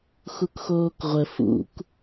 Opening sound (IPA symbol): x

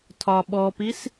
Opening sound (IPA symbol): tʰ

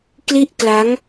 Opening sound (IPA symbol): k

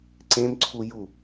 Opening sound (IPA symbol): ǀ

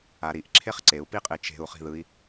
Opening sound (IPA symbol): a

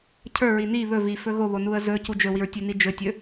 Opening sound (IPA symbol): cʰ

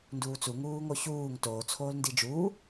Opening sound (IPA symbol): n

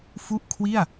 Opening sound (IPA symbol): f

